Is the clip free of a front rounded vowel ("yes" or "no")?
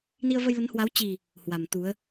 yes